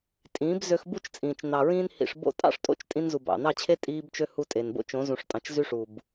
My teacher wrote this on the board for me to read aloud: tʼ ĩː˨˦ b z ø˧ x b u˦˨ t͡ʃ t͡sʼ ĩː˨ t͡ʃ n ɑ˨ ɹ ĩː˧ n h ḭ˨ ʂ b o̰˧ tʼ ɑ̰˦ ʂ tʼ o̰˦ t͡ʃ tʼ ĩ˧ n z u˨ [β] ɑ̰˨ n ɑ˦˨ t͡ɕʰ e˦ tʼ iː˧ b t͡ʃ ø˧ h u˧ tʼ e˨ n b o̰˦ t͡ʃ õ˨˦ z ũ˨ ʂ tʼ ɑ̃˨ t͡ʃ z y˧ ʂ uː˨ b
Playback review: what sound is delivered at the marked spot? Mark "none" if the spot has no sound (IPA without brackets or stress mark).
b